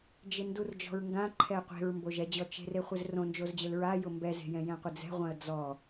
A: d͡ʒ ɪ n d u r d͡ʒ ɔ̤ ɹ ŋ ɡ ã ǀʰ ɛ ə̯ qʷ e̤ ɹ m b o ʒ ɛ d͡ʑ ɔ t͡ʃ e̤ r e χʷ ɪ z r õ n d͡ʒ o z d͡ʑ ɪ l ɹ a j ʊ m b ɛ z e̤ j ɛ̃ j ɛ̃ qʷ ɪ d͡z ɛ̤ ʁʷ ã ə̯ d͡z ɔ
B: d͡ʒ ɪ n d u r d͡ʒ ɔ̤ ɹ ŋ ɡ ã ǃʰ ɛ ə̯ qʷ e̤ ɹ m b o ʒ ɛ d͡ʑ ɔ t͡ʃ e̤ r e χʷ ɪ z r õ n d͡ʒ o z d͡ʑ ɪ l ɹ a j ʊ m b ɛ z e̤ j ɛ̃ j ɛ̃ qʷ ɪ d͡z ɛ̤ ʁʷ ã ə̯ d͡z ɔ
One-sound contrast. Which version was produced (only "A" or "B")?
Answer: B